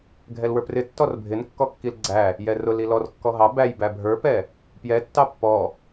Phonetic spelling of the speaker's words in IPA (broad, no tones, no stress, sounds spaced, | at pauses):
ɡʱ ɛ l w ə˞ p r ɪ tː ɔ r bʱ ɪ n kː ɔ kː i l ɡ͡ǀ æ | j ɛ r ʊ l i l ɔ r kː ɔ ɦ ɑ b æ j b æ bʱ ə˞ p ɛ | p j ɛ tː ɑ pː ɔ